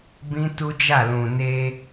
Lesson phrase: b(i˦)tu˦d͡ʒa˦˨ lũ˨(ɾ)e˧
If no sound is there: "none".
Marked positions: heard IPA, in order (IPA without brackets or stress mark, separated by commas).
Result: ĩ˦, n